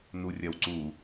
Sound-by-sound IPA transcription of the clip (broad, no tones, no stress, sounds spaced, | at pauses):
n u rʲ ɐ w ǀ u